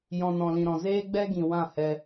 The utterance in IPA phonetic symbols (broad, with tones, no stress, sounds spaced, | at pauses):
j ɔ̃˨ n ɔ̃˨ l ĩ˨ ɾ ɔ̃˨ z eː˦ ɡ͡b ɛ˦ ɡ ĩ˨ w ã˦˨ h ɛ˧